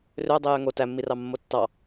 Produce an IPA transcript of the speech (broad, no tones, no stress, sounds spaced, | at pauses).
r ø dˤ i j ø ŋ o t æ mː i r ɑ mː o tː ɑ